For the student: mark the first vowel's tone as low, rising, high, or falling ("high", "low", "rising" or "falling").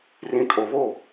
low